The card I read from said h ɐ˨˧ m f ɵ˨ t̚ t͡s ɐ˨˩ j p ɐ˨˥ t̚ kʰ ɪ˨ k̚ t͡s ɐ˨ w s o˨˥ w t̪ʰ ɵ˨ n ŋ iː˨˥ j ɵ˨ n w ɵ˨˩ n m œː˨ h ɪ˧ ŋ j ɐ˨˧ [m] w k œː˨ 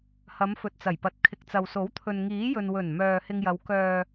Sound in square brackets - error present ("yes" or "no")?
yes